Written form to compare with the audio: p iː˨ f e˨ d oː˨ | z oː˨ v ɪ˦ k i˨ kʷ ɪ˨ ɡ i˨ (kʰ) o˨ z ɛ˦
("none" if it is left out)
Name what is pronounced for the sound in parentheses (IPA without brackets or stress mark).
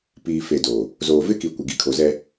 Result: kʰ